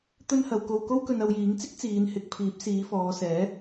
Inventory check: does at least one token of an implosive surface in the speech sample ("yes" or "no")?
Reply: no